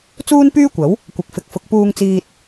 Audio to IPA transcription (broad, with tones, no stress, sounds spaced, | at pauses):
t͡s uː˥ n p yː˥ kʷ ɐ˨˥ w | kʷ ɐ˨ k̚ f ɪ˨˥ k̚ f ʊ˨˥ k̚ p uː˧ ŋ t͡s iː˧ t̚